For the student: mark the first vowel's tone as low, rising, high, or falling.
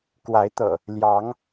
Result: rising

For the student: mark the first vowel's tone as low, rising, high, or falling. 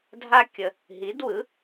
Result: high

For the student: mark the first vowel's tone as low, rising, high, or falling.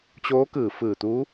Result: rising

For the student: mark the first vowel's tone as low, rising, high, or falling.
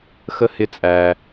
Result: high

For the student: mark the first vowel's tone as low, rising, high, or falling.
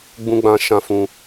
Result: low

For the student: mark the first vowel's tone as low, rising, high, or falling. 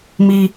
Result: high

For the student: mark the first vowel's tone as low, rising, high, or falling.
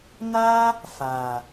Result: high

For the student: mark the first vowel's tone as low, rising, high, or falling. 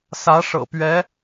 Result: rising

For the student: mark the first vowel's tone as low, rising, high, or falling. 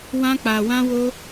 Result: high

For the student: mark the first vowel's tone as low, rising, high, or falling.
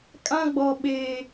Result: high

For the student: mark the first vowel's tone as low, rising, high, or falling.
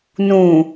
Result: low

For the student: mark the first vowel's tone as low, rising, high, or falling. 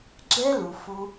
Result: high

